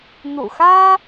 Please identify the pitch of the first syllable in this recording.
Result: low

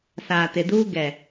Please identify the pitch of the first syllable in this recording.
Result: low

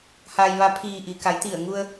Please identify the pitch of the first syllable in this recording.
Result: low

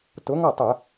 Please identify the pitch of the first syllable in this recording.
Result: rising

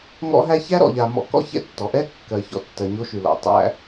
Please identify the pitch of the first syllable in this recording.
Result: high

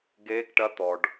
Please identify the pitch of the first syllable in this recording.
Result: rising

